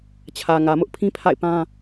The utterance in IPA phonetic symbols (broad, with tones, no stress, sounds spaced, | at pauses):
t͡ɕʰ ä˨ ŋ ä˨ m ʊ˦ ʔ pʰ ĩ˦ pʰ a̰˦˨ ɪ̯ p ã˦